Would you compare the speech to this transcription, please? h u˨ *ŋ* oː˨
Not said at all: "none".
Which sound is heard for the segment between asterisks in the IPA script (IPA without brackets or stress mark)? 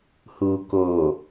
k